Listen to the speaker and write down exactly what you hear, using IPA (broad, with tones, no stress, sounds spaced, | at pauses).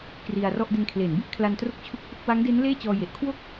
k r i˧ a̯ r ɔ˥˩ ʔ d e˧ n kʰ l e˩˦ n b i˥˩ ʔ kʰ l a˧ n t r o˥˩ k̚ t͡ɕʰ u˥˩ k̚ p u˥˩ k̚ w a˦˥ ŋ d e˦˥ n l eː˥˩ t͡ɕ ɔː˧ j e˨˩ ʔ kʰ w o˥˩ k̚